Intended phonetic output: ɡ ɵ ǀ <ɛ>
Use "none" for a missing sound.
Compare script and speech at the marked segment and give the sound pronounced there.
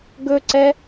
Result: ɛ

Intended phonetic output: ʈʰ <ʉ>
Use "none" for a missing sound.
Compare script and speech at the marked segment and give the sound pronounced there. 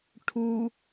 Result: u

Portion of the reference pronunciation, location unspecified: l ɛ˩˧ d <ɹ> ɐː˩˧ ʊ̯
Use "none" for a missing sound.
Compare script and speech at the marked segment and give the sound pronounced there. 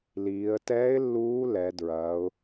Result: ɹ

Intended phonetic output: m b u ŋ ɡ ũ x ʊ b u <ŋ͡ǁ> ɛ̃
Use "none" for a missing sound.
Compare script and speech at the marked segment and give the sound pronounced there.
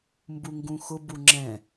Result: ŋ͡ǁ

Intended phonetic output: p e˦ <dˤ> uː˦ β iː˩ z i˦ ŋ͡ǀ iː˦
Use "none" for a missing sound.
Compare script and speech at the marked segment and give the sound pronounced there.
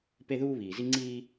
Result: ð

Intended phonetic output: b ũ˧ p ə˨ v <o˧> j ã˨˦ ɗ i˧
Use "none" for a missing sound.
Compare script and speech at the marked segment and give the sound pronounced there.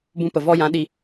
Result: ɔ˧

